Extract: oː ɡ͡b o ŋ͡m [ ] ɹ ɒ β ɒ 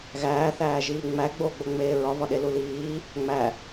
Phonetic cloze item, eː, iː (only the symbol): eː